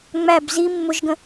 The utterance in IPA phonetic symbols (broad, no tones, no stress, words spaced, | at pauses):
ŋ͡mæb zi mːʊʒɡə̃